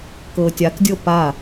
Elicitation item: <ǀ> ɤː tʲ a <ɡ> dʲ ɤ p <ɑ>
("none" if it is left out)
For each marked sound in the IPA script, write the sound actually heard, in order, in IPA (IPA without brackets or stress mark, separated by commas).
k, k, a